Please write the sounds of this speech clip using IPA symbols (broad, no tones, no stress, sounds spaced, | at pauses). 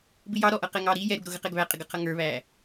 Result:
b ɪ j ɑ ɾ ɔ ʔ ʌ q ɛ ŋ ɑ ɾ i j ɛ ɾ u ɡ ɾ ʊ ɣ ə q ɛ ɡ β æ qʼ ɪ ɡ ʌ qʰ ʌ ŋ ə˞ β æː